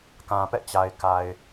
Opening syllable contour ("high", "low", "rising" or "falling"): low